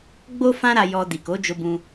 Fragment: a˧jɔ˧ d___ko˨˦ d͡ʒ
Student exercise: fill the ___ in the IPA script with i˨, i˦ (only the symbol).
i˨